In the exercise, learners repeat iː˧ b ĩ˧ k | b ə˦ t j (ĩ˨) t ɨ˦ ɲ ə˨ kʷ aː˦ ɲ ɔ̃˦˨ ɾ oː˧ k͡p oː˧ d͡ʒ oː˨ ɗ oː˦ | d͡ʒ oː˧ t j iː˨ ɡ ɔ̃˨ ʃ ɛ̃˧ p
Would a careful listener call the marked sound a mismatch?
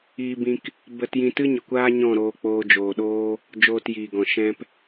yes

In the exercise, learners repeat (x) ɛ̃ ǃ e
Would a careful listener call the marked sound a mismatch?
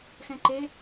no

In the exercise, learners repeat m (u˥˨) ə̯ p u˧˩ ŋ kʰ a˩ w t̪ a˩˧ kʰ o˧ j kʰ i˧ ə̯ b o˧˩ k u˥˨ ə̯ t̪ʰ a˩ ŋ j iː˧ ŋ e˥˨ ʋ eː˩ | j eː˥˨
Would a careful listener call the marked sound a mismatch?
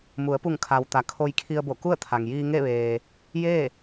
yes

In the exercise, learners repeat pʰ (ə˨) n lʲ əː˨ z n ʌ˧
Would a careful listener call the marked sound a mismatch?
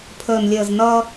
yes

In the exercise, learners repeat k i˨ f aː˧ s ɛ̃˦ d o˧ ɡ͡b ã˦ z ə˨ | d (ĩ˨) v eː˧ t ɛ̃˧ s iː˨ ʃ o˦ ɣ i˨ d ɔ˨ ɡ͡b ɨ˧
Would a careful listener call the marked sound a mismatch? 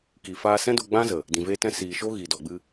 no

